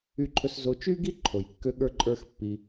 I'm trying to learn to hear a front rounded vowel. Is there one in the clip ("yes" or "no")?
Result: yes